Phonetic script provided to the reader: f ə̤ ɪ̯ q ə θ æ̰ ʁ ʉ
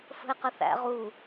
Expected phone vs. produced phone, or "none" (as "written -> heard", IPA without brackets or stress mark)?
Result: ʉ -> u